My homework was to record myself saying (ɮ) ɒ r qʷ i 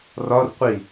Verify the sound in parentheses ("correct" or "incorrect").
incorrect